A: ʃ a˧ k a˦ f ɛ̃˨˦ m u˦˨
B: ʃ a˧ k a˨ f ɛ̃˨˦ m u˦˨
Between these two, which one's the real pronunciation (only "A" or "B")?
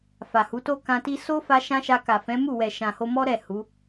B